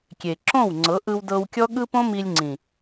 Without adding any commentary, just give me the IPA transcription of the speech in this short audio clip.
kʲ e˨ ǁ õ˦˨ w ŋ͡ǀ ɤ˨˦ ʔ ɯ˧ w d ɤ˧ w kʲ ɔ˦ ɠ ɯ˦ p õ˦ m i˧ lʲ ŋ͡ǀ ĩ˨

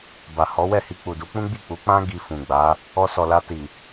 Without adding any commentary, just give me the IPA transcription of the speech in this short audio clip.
b a˨ h ɔ˨˦ w ɛ˦˨ h i˧ k͡p u˨ d u˨˦ k͡p ũ˦ ɡ͡b i˦˨ k͡p u˨˦ k͡p ã˦ ɡ i˧ f ũ˨ ɡ͡b a˨˦ | ɔ˧ s ɔ˨ l a˧ t i˨

